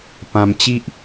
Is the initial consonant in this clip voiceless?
yes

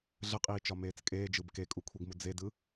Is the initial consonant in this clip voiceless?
no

